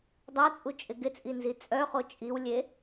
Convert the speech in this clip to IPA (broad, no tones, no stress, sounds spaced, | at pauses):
dˤ a t͡sʼ u t͡ʃʼ ɪ ɡ ɪ t͡sʼ i n z i t͡sʼ œ χ o t͡ʃʼ i w lʲ e